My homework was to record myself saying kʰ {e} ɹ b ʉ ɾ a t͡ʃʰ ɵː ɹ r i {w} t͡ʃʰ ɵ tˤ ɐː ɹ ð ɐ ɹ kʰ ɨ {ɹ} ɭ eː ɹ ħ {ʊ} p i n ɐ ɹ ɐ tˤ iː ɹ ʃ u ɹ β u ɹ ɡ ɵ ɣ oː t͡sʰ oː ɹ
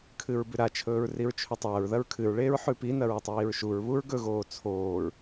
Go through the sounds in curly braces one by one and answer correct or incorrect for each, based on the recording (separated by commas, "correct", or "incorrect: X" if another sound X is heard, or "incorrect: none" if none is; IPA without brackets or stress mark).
incorrect: ɨ, incorrect: ɹ, correct, incorrect: ʉ